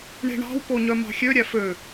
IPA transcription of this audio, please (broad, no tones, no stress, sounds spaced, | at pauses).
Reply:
ɳ e̤ ɳ ɑ̤ w p o ɲ œ m ɑ̤ xʲ ø ɾʲ æ f ø